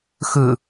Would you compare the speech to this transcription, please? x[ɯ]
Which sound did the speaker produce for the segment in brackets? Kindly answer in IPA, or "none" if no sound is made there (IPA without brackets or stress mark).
ɯ